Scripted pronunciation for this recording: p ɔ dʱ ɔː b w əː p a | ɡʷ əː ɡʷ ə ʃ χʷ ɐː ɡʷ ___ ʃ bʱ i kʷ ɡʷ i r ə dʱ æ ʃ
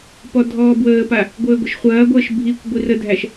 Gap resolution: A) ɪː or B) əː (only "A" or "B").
B